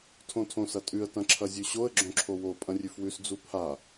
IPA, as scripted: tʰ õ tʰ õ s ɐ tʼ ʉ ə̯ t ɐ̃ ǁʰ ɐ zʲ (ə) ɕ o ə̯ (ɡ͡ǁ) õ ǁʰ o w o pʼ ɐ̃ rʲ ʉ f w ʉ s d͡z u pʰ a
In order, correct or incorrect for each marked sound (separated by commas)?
incorrect, correct